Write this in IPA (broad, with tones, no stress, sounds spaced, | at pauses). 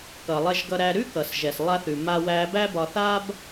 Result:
k ʌ˩ lˠ ɛ˧ ʒ ɡ ʌ˧ ɾ æ˧ ɾ ʉ˥ k ʌ˩ s ʒ ɛ˩ s lˠ a˧ θ ʉ˩ m a˧ w æ˧ b æ˥ b ɒ˧ θ a˥ b